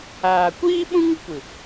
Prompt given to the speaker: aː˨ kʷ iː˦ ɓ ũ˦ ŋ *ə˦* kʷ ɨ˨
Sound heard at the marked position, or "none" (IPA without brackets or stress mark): ə˦